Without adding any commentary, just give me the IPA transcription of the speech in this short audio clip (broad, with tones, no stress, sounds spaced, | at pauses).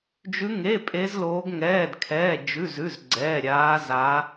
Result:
d͡ʒ ʉ˦˥ ŋ e˧˥˧ pʼ e˦˥ z l oː˦˥ ɡ ŋ ɛː˧˥˧ d kʰ ɛː˧˥˧ d͡ʒ ʉ˧˥˧ z ʉ˧˥˧ z ɡ͡ǀ ɛː˧˥˧ ɾʲ aː˦˥ z a˦˥